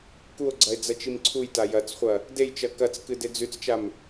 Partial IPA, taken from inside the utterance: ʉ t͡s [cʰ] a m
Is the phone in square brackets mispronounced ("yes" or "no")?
yes